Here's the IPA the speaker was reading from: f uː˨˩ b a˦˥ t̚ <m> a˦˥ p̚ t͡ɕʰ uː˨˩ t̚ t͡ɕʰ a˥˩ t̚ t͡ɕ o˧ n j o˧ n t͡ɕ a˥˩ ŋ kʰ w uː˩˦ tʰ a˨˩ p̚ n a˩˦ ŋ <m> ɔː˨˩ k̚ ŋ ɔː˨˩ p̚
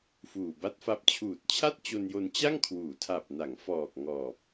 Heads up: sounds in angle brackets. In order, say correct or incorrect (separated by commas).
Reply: incorrect, incorrect